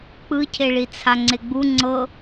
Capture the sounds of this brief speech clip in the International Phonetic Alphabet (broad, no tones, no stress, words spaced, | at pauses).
k͡pɯcʰeɭit͡sʰa ŋ͡ǀeɡ͡bu ŋ͡ǀɤ